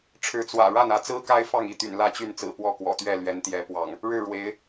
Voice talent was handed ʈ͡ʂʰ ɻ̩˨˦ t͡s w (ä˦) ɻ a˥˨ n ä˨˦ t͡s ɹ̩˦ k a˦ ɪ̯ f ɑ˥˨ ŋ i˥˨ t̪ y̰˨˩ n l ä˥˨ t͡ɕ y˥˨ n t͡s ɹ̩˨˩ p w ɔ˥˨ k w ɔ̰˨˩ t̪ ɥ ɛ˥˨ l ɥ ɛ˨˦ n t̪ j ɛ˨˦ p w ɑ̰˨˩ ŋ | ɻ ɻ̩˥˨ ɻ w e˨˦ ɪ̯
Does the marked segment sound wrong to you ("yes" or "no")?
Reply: yes